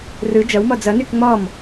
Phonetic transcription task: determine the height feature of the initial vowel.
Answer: high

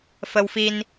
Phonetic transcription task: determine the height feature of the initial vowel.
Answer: mid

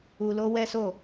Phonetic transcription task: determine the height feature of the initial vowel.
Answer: high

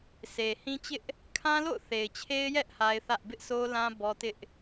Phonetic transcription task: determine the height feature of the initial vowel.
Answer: mid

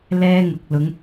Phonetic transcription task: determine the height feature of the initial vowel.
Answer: mid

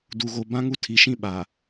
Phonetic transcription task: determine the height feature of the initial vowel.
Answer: high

